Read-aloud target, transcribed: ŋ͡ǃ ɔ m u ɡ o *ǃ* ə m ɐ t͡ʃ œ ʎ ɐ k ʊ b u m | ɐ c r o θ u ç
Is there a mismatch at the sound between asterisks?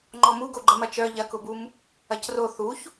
yes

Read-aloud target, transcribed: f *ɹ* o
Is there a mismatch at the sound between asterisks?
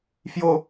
yes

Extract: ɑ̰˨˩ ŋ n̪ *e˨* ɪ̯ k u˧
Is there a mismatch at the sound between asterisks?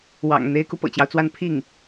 yes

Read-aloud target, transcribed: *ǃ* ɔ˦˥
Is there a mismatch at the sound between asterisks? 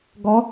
yes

